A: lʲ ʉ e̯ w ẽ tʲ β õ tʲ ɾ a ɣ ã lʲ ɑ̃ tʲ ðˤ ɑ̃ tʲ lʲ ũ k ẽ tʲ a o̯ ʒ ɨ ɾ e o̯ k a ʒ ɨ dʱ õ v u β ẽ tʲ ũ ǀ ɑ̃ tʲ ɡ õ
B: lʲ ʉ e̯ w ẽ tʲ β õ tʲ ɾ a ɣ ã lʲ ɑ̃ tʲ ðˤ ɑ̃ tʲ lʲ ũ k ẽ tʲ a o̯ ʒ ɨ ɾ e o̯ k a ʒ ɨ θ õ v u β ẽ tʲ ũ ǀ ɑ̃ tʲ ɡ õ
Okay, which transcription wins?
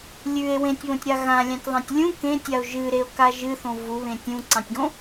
B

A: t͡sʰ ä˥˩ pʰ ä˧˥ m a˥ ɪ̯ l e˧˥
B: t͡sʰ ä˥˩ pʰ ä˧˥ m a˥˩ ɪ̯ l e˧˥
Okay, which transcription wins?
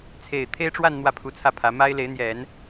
A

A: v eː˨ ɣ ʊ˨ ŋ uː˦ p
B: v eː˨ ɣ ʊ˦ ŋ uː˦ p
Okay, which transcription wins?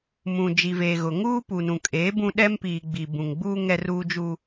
A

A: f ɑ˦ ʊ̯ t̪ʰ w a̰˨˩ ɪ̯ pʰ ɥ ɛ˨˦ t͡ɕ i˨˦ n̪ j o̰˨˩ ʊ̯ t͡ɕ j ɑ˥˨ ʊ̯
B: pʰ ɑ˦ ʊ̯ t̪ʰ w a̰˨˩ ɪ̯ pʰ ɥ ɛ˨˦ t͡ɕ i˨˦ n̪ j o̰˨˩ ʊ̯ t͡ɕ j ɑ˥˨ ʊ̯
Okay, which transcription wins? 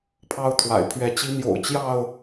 B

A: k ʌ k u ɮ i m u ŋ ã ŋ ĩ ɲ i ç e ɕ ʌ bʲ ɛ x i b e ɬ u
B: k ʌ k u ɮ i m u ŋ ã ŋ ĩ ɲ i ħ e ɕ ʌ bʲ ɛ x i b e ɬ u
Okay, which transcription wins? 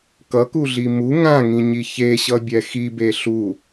A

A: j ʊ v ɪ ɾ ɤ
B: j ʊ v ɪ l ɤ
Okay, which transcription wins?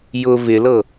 B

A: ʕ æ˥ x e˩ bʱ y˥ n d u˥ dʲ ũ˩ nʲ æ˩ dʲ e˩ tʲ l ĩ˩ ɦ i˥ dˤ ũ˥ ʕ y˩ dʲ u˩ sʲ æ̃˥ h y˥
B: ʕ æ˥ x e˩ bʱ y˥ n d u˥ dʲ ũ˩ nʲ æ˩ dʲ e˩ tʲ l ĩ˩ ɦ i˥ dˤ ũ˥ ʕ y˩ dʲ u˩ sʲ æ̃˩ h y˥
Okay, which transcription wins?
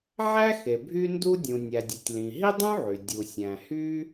B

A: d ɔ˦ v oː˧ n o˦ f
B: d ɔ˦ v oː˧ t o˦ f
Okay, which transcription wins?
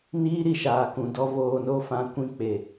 A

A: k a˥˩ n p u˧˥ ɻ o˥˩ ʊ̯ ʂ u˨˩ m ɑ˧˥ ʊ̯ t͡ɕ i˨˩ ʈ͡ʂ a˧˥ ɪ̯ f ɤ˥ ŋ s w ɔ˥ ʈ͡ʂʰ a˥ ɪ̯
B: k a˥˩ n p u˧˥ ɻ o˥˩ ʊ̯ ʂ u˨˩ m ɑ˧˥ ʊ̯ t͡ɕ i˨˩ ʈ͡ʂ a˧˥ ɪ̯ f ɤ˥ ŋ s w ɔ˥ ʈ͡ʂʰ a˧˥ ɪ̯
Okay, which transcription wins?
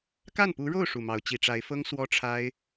A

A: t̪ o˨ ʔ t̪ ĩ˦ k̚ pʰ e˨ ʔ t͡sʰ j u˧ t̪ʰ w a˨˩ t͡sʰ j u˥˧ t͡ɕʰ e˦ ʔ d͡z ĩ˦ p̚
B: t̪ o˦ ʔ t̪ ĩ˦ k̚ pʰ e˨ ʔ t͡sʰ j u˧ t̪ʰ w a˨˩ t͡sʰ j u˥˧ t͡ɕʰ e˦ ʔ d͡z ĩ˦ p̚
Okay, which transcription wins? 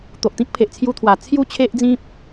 A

